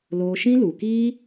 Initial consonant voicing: voiced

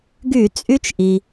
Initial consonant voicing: voiced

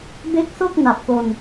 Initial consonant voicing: voiced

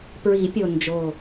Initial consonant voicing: voiceless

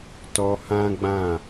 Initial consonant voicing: voiceless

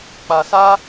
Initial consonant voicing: voiceless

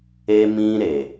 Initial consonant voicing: voiced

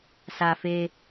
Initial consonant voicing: voiceless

